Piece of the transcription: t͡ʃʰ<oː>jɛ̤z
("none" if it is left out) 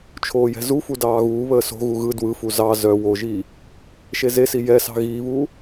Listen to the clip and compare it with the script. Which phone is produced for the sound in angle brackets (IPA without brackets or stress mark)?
oː